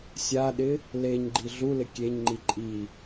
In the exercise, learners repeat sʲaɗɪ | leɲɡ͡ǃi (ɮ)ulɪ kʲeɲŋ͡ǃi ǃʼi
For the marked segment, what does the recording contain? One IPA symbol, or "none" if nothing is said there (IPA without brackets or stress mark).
ɮ